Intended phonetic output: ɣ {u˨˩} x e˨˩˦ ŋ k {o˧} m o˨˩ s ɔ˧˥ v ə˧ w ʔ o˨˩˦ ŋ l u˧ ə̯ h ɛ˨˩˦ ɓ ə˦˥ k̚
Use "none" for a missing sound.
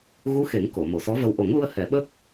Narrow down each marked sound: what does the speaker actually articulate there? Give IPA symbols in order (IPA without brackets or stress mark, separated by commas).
u˧˥, o˨˩˨